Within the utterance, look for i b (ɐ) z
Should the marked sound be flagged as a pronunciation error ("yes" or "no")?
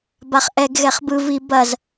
no